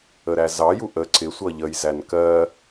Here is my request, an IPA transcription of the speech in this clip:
ə ɾ æ z ɑ j u ʔ ə ǀ ɪ sʷ ʌ ʎ ə j z æ n k ɜ

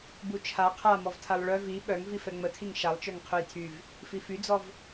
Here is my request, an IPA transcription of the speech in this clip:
b u t͡ʃʰ a qʰ a m ɔ v tʰ a lˠ ɭ œ v i ɓ œ ŋ v i f ɛ ŋ͡m ə tʰ i ŋ ʃ a lˠ t͡ʃ œ ŋ qʰ ø j tʰ y v | f i f y d͡z ɔ v

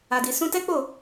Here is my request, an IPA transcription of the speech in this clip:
a˨ d i˨ s ũ˧ t ɛ˦ k͡p o˦˨

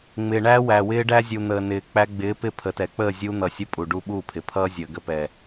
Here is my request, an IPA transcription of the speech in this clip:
ŋ͡m ɪː˨ ɳ æː˦ w æ˨ w ɪː˦ ɖ æ˦ zʲ u˨ n̪ əː˨ n ɪː˨ k͡p æ˧ ɡ͡b ɪː˨˦ p ɪ˧ pʰ ə˨ t ɛ˨ k͡p əː˦˨ zʲ u˧ n̪ ʌ˨ sʲ ə˧ pʼ u˨ ɖ u˦˨ ɓ u˦˨ pʰ ɪ˨ pʰ ʌː˦ zʲ əː˨ ɡ ə˧ p ɛ˨

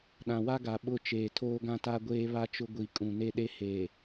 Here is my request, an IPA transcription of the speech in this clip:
ɗ ã˨ w a˦ ɡ a˨ ɓ ʊ˦˨ t͡ʃ eː˨ tʰ oː˦ ɡ ã˦ t a˦ ɡʷ eː˦ β a˦ t͡ʃ ʊ˦ ɡʷ i˨ kʼ ũ˨ n e˦ ɗ e˦ h eː˨

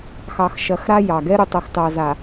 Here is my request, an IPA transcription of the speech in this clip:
x ɑ˨ x ʃ ɐ˨˦ x ɾ a˦ j ɑ˨ ɡ ɛ˦ ɾ ʊ˨ tˤ ʌ˨ x t ɑ˨ z a˨

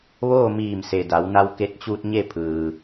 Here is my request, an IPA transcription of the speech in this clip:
ʋ oː˥˨ m iː˧˩ m s e˩ d a˩˧ w n a˧ w k e˧ t̚ t͡ɕ uː˧ t̚ ɲ e˥˨ pʰ ɯː˩

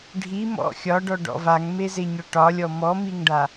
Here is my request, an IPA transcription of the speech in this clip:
ɖʱ i m ɔ̰ xʲ ɒ ɖ ɔ ɖ ɔ̰ v a ŋ m e z e ɲ ɔ ʈ ɒ lʲ ɔ m ɔ m i ŋ ɖ a

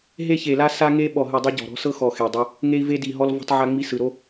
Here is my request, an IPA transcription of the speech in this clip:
ɦ e˦ ç e˨˩ l a˦ s a˦ ŋ e˦ ɓ ɔ˨˩ ɦ ɯ˨˩ dˤ ɤ˦ ɟ ɔ̤˨˩ ɾ ɔ̤˦ s ɤ˦ x ɔ˨˩ x e˨˩ dˤ ɛ˦ | ŋ e˦ i̯ v e˦ d i˨˩ ɦ ɔ˦ l v ɔ̤˦ tˤ ʕ a˦ ŋ͡m i˦ s ɯ˨˩ ɾ o˦

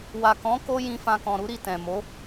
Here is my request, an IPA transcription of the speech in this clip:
w a˨ k ɔ̃˨˦ k o˦ j ĩ˧ f ã˧ k ɔ̃˨ ɾ u˨˦ ɾ i˦˨ t ɛ̃˨ m o˨˦

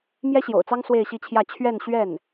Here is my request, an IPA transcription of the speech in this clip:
m j ɛ˥ ɕ j o̰˨˩ ʊ̯ t͡s ɑ˥ ŋ s w e˥˧ ɪ̯ ɕ i˥˧ t͡ɕʰ j ä˥˧ t͡ɕʰ ɥ ɛ˥˧ n ɕ ɥ ɛ˥˩ n

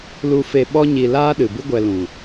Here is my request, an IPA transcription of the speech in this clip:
l u˧ f e˧ ɓ ɔ˦ ɲ i˧ l aː˦ ɗ ɨ˨ b ɨ˦ ɡʷ ɛ˧ l ũ˨

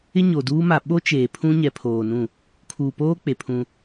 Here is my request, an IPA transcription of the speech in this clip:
ɪ˦ ɲ o˨ d uː˦ m a˨ ɓ o˦ t͡ʃ eː˨ pʰ ũ˦ ɲ ɛ˨ pʰ oː˨ n ũ˦˨ | kʰ uː˨ p oː˦ k͡p e˨ pʰ ũ˦

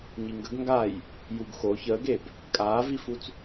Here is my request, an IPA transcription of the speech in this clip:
ɲ i ŋ ɡ ə ɡ ŋ ɡ a j | j u ɡ x o ç əː ɡ e b | kʼ aː v i f u t͡s

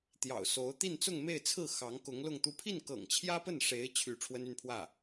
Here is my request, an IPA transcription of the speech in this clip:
t̪ j ɑ̰˨˩ ʊ̯ s o˧˥ ʊ̯ t̪ i˥˧ n t͡s ʊ˥˧ ŋ m e˥˧ ɪ̯ t͡sʰ ɹ̩˥˩ x ɑ˧˥ ŋ k ʊ˧˥ ŋ l ʊ˥˧ ŋ t̪ u˥˧ pʰ i˥˩ n k ɤ̰˨˩ ŋ t͡ɕʰ j ä˥ p ə˥˩ n ʂ e˧˥ ɪ̯ t͡ɕʰ y˥˩ ʈ͡ʂʰ w ə˥ n y˥˧ n pʰ w ä˥˩

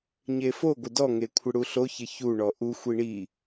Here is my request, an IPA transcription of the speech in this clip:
ɲ e f o ɡʷ ɪ d ɔ ŋ e kʷʰ ɪ ɽ u ɬ o ç ɪ ç u ɳ ɔ ʔ u xʷ i ɳ i

